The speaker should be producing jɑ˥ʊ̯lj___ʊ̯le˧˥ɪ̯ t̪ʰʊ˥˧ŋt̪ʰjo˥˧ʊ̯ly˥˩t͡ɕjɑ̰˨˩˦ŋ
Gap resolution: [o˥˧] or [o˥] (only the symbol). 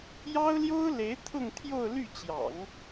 o˥